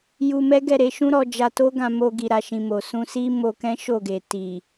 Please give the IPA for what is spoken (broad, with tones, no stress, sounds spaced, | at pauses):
j u˧ m ɛ˦ ɡ ɛ˦˨ ɾ e˧ ʃ ũ˦ ɾ ɔ˧ d͡ʒ a˧ t o˦ ɡ ã˧ m o˧ ɡ i˨ ɾ a˨ ʃ ĩ˨ m o˨ s ũ˧ s i˦ m o˧ k ɛ̃˦ ʃ o˦˨ ɡ e˨ t i˨